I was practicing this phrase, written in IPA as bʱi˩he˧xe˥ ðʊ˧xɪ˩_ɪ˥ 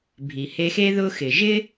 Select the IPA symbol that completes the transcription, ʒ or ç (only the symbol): ʒ